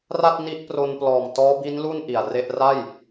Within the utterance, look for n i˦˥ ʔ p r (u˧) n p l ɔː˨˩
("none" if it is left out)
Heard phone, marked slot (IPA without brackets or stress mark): o˧